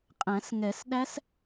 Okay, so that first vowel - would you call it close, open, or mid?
open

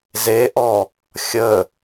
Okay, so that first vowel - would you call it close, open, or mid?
mid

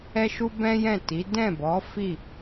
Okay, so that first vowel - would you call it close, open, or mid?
mid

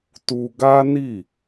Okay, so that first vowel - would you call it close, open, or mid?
close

